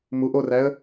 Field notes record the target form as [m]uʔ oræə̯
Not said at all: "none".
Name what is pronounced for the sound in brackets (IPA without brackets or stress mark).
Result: m